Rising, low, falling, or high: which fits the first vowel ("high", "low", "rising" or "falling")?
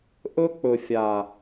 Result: high